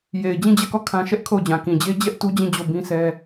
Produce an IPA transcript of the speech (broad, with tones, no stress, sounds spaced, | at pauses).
j e˨ ɪ̯ d͡ʑ ĩ˦˨ d͡ʑ ɛ˦˨ k ɔ˦˨ kʰ ã˦ ʃ ɛ˦ ʔ kʰ o˦˨ ʊ̯ d͡ʑ ã˨ k ĩ˨ d͡ʑ e˦ d͡ʑ ɛ˦ ʔ t u˦ d͡ʑ ĩ˦˨ d͡ʑ o˦˨ b ĩ˦ s ɛ˦